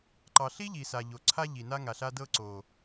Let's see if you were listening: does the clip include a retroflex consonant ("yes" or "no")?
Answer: no